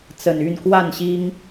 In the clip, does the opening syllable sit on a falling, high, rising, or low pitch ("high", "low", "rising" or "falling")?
low